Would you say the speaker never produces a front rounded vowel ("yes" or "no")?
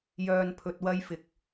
no